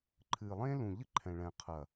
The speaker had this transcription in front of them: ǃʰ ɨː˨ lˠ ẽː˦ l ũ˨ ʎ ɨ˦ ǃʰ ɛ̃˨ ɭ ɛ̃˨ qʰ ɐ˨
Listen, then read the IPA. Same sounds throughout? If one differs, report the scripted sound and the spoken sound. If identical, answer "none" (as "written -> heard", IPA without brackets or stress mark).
none